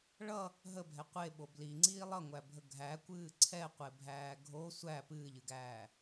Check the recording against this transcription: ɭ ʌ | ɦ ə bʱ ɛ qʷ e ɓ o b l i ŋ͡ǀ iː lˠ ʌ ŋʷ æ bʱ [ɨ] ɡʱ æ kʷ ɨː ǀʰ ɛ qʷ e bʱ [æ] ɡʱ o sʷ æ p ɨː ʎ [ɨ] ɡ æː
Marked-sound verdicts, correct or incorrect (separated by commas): incorrect, incorrect, correct